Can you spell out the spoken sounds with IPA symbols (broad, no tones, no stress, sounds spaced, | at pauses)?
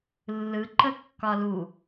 lː ɯ ǃ ə kː ɒ l u